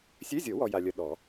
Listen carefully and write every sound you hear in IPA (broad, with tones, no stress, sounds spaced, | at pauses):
sʲ ø˧˥˧ zʲ o˨˩˦ w ɔ˨ j a˨ lʲ ə˨ ɗ ɔ˨˩˦